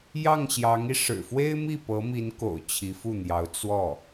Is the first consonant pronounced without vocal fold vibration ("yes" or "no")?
no